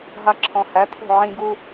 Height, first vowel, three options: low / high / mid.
low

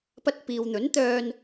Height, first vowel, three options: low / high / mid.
low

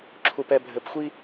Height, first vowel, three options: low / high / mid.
high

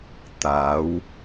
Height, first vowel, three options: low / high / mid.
low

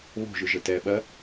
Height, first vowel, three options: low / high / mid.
mid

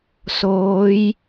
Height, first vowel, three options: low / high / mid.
mid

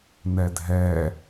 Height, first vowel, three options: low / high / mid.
mid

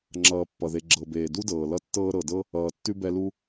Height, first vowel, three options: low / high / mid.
mid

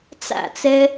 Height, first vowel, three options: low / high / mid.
low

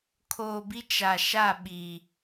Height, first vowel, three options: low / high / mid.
mid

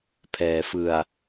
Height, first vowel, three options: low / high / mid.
mid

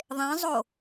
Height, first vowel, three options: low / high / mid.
mid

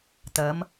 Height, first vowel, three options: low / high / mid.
low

